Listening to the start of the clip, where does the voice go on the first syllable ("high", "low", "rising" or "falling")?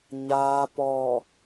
low